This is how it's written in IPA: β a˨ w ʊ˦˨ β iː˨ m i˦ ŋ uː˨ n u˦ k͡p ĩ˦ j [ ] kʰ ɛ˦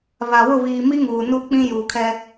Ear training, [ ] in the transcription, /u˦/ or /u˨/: u˨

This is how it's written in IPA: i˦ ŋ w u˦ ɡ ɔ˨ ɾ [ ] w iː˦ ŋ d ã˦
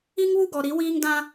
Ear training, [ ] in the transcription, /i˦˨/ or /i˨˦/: i˨˦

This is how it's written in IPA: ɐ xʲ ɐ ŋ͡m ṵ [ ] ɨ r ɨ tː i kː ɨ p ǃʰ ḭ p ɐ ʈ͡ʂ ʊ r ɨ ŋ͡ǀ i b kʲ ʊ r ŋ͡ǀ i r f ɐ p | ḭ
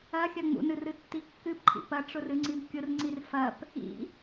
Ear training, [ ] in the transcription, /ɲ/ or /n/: n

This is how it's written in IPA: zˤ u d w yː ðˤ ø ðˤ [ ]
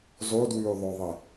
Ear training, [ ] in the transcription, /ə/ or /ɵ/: ə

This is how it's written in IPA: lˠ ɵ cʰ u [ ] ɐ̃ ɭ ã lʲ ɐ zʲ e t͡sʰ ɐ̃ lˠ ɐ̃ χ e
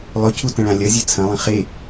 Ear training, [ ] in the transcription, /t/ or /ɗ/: t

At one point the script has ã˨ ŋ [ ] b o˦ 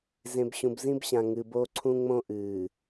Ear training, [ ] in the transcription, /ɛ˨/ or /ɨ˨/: ɨ˨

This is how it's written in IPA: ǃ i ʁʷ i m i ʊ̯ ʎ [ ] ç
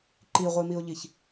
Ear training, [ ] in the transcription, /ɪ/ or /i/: i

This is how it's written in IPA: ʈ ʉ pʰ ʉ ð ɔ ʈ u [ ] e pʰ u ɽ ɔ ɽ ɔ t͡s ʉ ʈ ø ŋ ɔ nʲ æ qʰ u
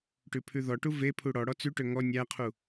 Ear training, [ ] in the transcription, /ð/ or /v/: v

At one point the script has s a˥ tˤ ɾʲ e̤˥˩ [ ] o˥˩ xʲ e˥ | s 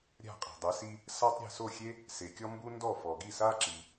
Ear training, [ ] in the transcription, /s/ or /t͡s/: s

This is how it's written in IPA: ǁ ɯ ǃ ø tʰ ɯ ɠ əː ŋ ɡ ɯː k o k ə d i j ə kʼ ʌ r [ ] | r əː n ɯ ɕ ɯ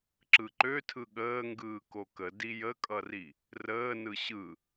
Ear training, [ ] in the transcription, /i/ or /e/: i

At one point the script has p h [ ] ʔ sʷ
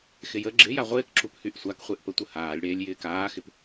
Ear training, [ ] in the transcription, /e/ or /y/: y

